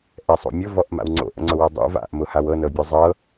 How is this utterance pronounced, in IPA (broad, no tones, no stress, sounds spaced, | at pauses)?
ʔ ɛ sˤ o̰ mʲ ʊ v ɔ ʔ m a̰ w ŋ͡ǀ o̰ ʔ ə̰ ŋ͡ǀ ʊ w ɤ dˤ o̰ v a̰ ʔ m ʊ h a w ɤ n ɤ bʲ ɔ zˤ ɤ